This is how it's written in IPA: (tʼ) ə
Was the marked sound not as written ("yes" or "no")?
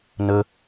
yes